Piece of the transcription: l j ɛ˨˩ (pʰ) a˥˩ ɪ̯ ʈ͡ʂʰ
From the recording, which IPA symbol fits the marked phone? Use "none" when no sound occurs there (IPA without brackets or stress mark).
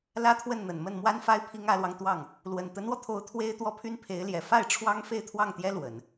f